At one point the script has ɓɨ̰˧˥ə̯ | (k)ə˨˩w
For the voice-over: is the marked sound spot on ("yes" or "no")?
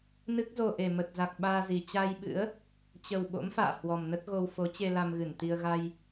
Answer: no